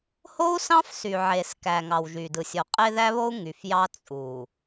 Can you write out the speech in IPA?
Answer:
h o˦ u̯ s ɑ̃˦ f s y˨ ʕ e˨ s k æ˨ ŋ ɑ˨ w ʒ y˨ d ɯ˨ sʲ o˨ qʼ e˦ ð æ˦ β o˦ u̯ ŋ y˨ f j ɑ˦ t͡sʼ u˨

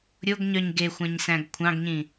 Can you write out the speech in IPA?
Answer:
ɾʲ o ɡ ɲ œ ɲ ɡ e xʷ æ̃ ɲ s æ̃ ɡ kʷʰ ɑ̃ ɡ ɲ ĩ

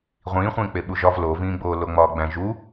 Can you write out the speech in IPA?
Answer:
ʁʷ ĩː χʷ ĩː k͡p e ɓ u ʒ ɒ v l o v ĩː ɡ͡b oː l o ŋ͡m ɒː ɡ͡b æ̃ ʒ u

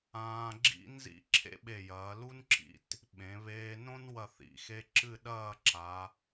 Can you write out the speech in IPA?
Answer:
ãː˧ ɡ͡ǁ ḭ˥ n z ḭ˥ ǁʰ ḛ˥ ɓ e˧˩ j ɐː˩˧ l u˥ n ǁ ḭ˧ t | ɓ ẽ˩˧ β eː˧ n õ˥ n w ɐ˧˩ θ ḭ˩˧ x e˧ ǁ ɨ˥˧ ɗ ɐː˥˧ ǁ a˩˧

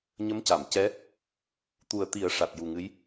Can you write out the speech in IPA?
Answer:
ɲ ə˧˥ m c a˨˩˨ m c ɛ˧˥ | t̪ u˨˩ ə̯ t̪ i˨˩˦ ə̯ ʂ a˨˩ t̚ j u˨˩ ŋ ɨ˧˥ j

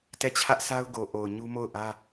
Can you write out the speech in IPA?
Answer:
t ɛ˦˨ t͡ɕʰ ä˦ ʔ sʰ a˦ ʊ̯ ɡ o˨ ʔ o˨ ʊ̯ ɲ u˦ m o˦˨ ʊ̯ ʔ ä˦

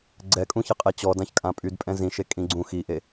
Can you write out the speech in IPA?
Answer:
ɡ͡ǀ ɛ kʼ ũ ç ɛ qʼ e t͡ɕ ɔ d ã ç kʼ ã pʼ y d pʼ ɛ̃ z ĩ ʃ e kʼ ĩ ɡ͡ǀ ũ x i ʔ e

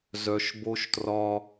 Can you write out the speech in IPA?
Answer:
z œ˨ ʃ b o˦ ʃ t r ɒ˦

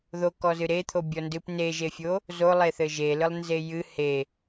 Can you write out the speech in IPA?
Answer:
ð o k ɔ z ɨ ɾ e t̪ʰ o bʲ ɔ n d ɨ p n e ʒ e fʲ o | z o lˠ e θ ɘ ʒ e l ɨ lˠ n z e j ɨ h e

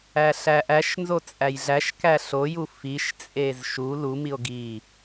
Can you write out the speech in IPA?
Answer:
æ ɬ æ ʔ æ ʃ n z o t͡sʼ æ j ɮ æ ʃ k æ ɬ o j u f i ʃ t͡sʼ e z ʃ u l u m i o̯ ɡ i

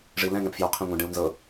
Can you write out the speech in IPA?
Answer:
ʐ i l ɛ̃ ŋ ɛ̃ p f j o qʰ ẽ ŋʷ ĩ ɖ ẽ u̯ n z ɤ

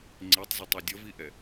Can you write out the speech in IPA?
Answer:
ŋ͡ǀ i tˤ z ɪ tˤ ɛ dʲ ʌ v i ʔ ɛ

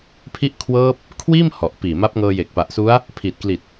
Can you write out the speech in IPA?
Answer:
pʰ i˦˥ ʔ kʰ w ɤː˦˥ p̚ | kʰ w iː˥˩ m h ɔ˨˩ ʔ p iː˨˩ m a˦˥ p̚ ŋ ɤː˧ j e˨˩ k̚ p a˨˩ ʔ s u˦˥ a̯ | pʰ i˨˩ t̚ k l i˨˩ t̚

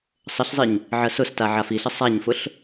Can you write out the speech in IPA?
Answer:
sˤ ə ɬ zˤ i ɲ | ʕ ɜ s ʊ s t a ʕ a f i ɬ ə sˤ a ɲ f ʊ ɬ

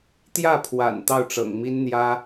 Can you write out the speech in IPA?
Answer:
t̪ j ä˥˩ pʰ w a̰˨˩ n t̪ ɑ˥˩ ʊ̯ ʈ͡ʂ ɤ̰˨˩ ŋ m i˥ n n̪ j ä˥

